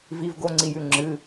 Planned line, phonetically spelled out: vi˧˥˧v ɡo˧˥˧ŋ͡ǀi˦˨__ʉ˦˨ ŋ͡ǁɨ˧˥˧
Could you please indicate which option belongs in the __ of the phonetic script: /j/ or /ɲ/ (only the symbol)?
j